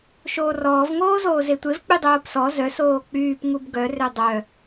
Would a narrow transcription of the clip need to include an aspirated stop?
no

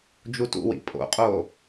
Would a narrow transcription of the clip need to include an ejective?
yes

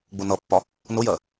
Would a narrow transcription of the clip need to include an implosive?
no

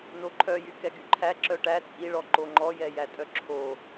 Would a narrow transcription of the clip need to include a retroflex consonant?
yes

